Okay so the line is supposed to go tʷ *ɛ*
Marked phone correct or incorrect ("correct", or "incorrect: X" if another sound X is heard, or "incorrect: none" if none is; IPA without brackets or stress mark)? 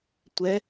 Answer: correct